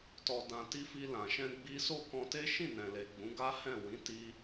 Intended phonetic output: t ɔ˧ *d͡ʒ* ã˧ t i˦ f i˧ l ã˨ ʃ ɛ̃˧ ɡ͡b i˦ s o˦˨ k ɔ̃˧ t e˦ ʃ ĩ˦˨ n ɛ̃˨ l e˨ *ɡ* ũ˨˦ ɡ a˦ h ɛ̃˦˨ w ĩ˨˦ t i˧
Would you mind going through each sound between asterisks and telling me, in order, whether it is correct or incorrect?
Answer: incorrect: d, incorrect: ɡ͡b

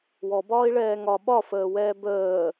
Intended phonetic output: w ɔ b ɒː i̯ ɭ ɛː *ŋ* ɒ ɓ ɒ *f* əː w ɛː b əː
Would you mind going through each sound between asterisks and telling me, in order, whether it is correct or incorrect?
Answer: correct, correct

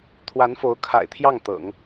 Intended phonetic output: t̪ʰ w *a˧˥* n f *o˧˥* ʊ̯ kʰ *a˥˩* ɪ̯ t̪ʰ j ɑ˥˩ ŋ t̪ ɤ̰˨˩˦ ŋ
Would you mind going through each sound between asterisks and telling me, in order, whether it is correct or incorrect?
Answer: correct, correct, incorrect: a̰˨˩

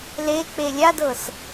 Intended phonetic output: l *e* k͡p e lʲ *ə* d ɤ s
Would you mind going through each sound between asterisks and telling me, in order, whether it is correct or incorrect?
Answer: correct, incorrect: a

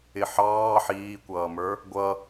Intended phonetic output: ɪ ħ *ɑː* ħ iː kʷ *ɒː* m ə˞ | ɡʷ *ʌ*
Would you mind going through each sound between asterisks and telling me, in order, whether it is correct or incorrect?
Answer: correct, incorrect: ʌː, correct

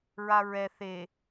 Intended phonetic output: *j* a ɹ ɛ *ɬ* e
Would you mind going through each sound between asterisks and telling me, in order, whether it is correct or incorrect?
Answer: incorrect: ɹ, incorrect: θ

